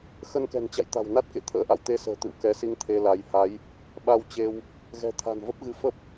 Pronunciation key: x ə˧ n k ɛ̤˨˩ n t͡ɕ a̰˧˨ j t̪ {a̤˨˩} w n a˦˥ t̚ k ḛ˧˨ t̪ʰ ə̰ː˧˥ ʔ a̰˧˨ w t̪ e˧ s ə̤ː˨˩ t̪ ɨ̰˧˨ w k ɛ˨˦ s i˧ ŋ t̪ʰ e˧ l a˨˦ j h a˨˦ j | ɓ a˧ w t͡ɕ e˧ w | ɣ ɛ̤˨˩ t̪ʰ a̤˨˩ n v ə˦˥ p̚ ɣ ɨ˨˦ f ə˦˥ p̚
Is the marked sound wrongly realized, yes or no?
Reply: no